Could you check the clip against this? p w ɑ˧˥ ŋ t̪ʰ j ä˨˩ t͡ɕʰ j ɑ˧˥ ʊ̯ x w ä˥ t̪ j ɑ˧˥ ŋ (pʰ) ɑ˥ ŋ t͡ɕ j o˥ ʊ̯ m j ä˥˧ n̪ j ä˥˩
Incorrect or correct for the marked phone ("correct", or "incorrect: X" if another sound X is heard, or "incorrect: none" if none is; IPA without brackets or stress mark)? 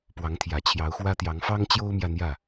incorrect: f